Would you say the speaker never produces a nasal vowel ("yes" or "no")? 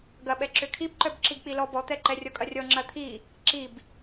yes